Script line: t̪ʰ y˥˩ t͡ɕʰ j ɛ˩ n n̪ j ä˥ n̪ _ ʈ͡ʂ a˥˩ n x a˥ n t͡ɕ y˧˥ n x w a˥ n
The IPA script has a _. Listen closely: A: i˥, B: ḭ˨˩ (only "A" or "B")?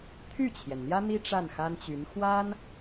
A